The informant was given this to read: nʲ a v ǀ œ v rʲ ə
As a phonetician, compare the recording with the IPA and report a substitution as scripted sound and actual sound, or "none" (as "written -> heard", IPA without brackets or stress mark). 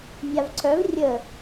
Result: none